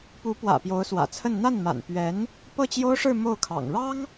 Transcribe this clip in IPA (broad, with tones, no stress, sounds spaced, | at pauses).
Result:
p u˧˥ p w ä̰˨˩ p j o˧˥ ʊ̯ s w ä̰˨˩ t͡sʰ ə˥˧ n n̪ a˥˩ n m a̰˨˩ n p ɥ ɛ˧˥ n | p ɤ˥˩ t͡ɕ j o˥ ʊ̯ ʂ ɻ̩˥˧ m o˥˩ ʊ̯ kʰ ɑ̰˨˩ ŋ ɻ ɑ˥ ŋ